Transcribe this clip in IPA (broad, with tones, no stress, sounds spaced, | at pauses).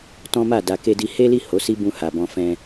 t ɔ̃˦ m a˦˨ d a˨ k e˧ d i˧ h e˦ l i˦˨ h o˨˦ s i˦ b ũ˧ h a˨ b ɔ̃˧ f ɛ̃˧